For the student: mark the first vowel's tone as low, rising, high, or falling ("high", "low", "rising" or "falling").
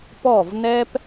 falling